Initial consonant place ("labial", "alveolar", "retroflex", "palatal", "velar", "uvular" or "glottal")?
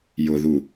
palatal